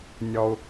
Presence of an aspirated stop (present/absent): absent